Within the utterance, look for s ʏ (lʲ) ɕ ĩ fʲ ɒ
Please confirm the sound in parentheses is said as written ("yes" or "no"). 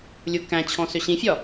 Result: no